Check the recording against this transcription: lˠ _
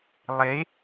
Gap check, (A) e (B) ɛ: A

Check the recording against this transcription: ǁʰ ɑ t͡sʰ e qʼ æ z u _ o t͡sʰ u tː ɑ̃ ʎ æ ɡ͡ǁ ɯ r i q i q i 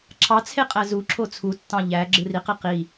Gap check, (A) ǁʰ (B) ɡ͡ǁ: A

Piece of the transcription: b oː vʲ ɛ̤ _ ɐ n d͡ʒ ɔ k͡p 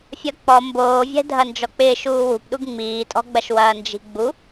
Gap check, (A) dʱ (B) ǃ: A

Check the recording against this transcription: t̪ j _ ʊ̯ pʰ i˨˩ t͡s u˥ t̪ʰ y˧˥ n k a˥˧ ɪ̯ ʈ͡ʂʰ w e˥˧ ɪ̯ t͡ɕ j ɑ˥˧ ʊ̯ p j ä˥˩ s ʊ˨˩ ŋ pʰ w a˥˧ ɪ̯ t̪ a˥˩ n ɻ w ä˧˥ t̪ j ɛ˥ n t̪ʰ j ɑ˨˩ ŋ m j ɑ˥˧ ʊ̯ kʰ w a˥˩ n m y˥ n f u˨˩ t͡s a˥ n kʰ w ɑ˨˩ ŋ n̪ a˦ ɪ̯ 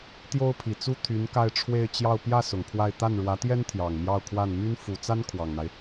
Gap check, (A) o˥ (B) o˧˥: A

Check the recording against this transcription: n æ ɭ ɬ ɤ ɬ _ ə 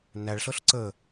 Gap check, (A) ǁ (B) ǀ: B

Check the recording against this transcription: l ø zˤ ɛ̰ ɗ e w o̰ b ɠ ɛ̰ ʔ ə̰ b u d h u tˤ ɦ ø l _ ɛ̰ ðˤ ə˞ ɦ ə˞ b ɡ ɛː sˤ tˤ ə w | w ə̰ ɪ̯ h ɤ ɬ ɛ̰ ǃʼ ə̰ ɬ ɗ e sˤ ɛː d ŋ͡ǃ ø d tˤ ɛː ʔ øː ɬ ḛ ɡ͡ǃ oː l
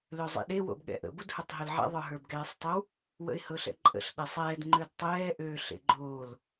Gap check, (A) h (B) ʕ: B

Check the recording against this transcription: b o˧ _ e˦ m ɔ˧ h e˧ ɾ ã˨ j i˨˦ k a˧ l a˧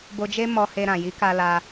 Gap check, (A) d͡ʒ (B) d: A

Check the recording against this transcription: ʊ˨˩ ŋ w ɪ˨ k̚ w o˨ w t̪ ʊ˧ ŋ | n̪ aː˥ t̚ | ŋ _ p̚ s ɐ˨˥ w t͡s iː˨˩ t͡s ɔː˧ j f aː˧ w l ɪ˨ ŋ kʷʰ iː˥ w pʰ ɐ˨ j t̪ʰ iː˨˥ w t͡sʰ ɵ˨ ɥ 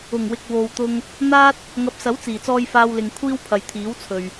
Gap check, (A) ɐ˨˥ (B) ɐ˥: A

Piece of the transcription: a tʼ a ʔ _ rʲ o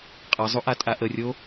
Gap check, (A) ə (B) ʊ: A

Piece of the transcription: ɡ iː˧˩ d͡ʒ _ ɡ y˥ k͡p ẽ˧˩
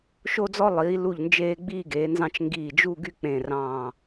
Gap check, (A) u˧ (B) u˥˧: B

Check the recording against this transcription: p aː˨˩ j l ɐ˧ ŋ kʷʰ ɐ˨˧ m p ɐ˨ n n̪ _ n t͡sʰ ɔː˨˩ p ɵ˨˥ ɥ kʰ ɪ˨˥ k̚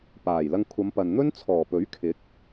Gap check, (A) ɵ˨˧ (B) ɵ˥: B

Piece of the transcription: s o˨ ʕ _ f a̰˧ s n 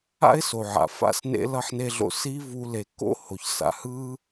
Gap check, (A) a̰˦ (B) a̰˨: B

